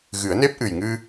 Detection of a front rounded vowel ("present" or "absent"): absent